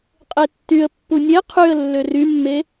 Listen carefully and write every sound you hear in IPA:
qʼetːyə̯ pːunʲe qʰyə̯ lːørymːe

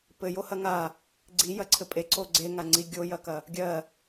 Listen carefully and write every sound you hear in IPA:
pɘjohɐ ŋa | ɡ͡ǀijɐǀʰɘ pʼeǀo ɡ͡ǀeŋaŋ͡ǀi ɡʲojɐkɐ | ɡʲɜ

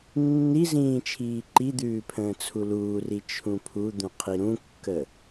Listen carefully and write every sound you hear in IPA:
nːizĩː t͡ʃʰiːǃid̪ʉː pʰə̃ːt͡sʰuluːri t͡ʃʰũpʰud̪ũ qʰiɾũkːə

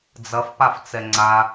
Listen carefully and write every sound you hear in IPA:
d͡zɐfpaft͡sɛ ŋ͡ǀa

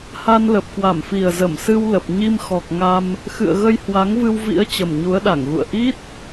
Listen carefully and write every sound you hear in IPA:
ha˧nlə˨˩p̚kwa˧˩mfi˨˩ə̯ zə˧˩msɨ˧w lə˨˩p̚ ɲi˧mxɔ˨˩k̚ ŋa˧m | xɨ̰˧˨ə̯ɣə˧j hwa˨˦ŋvɨ˧wvḭ˧˥ə̯ t͡ɕə˨˩mɲu˨˦ə̯ɗa˧˩ŋɣṵ˧˨ə̯ ʔi˦˥t̚

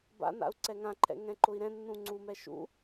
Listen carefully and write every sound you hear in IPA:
ba̰na̰u̯ ǀɛŋãǃʰɛ̰ ŋɛ̃ǃʊi̯ɾɛ̃ nːũŋ͡ǀumɛ ʃṵ

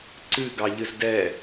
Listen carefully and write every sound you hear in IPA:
ǀɨ ɡɑʎɨzdɛ

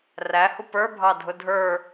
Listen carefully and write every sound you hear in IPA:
ræ hupə˞ bʱɑdʱʊdʱə˞

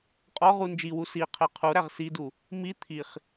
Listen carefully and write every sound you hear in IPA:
qʼɒʁu nd͡ʒiwu siqʰe qʰuɾæʁ sidu | mi t̪ʰiχ

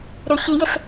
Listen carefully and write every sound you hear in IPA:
ɾʏ çijɪs

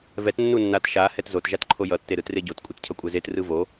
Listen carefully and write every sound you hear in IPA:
vɛt nːunːat ʃa hɛtzot ʒatǃʰojʌ tːeɾɯtreɟot kʷʼitcʰʌkʷʼɛzet rɯvo

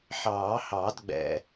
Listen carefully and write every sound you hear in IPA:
ħɑː˨˩˦hɑ˨˩˦dɡ͡bɛ̰˨

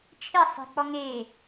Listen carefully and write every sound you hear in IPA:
t͡ʃʰɪɐ̯sˤe̤k͡pɔ ŋe

